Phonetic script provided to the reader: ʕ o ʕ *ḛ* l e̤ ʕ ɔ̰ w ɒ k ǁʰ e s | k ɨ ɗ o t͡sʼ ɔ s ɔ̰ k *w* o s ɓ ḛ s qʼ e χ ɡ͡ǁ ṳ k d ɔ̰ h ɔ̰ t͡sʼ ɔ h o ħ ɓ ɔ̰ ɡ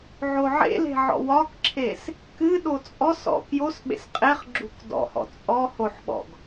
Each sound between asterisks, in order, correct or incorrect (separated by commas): correct, incorrect